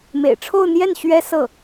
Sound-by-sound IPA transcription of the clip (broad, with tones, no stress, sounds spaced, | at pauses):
m ḛ˨˩ ɪ̯ ʈ͡ʂʰ o˥˧ ʊ̯ n̪ j ɛ˥˩ n ɕ ɥ ɛ˥ s ɤ˥˩